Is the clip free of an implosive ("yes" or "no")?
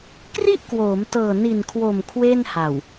yes